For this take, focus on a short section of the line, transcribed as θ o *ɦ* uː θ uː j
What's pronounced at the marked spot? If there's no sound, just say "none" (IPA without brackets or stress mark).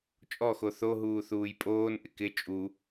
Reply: ɦ